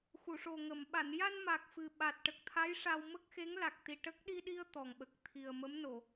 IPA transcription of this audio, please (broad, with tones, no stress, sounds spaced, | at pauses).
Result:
x u˨˩˨ ʂ o˨˩ ŋ ə˨˩˨ m ɓ a˨˩˨ n j a˧ n m a˨˩ k̚ f ɨ˨˩ ɓ a˨˩ t̚ ʈ ə˨˩ k̚ t̪ʰ a˧˥ j ʂ a˧ w m ə˦˥ k̚ x e˧˥ ŋ l a˨˩ k̚ t̪ i˨˩ ʈ ə˦˥ k̚ ɗ i˧ ɗ i˧ ə̯ t̪ ɔ˨˩ ŋ ɓ ə˨˩ k̚ t̪ʰ i˨˩ ə̯ m ə˧˥ m n o˨˩˨